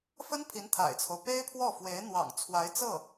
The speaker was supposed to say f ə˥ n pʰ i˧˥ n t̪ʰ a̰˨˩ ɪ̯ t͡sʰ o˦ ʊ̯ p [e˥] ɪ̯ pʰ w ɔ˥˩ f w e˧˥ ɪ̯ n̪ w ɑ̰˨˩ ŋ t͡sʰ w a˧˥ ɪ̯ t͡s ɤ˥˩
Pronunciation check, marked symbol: correct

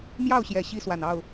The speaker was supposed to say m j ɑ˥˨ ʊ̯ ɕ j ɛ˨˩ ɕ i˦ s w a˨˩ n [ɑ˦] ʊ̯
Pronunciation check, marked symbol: incorrect: ɑ˥˨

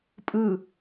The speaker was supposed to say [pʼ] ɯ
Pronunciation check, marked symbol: correct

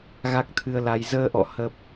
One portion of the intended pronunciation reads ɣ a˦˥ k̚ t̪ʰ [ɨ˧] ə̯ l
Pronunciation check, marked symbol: correct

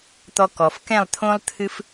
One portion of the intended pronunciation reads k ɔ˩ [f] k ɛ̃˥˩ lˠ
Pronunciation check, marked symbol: correct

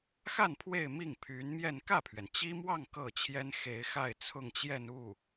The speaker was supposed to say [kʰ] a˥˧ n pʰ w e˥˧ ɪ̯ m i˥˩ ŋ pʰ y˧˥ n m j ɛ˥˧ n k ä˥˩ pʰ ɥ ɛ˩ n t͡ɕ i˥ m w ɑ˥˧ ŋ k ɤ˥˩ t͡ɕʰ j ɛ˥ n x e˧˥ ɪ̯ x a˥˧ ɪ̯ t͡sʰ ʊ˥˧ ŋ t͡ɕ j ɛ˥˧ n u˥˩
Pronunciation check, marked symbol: incorrect: x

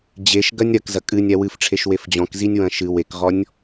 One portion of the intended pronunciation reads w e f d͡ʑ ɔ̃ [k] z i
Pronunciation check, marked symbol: correct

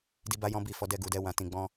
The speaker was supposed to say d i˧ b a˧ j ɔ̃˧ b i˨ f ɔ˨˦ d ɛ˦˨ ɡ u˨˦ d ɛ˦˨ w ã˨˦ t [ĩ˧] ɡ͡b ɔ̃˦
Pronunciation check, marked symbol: correct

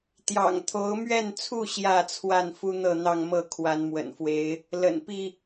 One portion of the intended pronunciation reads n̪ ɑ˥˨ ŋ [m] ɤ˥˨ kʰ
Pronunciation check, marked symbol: correct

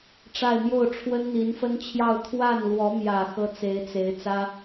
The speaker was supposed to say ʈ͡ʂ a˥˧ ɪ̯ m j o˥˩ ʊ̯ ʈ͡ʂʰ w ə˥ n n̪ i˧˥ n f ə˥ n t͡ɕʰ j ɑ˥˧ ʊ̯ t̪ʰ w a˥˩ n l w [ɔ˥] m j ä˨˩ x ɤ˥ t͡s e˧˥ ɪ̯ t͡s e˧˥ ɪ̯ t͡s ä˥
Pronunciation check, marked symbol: incorrect: ɔ˧˥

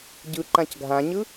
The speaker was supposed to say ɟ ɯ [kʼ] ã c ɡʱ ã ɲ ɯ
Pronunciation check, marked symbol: incorrect: ǃ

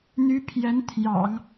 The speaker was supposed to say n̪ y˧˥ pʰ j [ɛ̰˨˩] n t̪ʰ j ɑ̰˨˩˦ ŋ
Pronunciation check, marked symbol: incorrect: ɛ˧˥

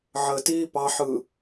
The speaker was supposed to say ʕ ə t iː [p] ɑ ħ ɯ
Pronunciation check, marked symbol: correct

